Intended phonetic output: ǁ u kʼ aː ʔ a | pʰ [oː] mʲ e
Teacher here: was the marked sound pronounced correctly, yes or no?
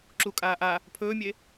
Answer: no